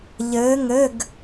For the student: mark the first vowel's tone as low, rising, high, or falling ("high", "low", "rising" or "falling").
rising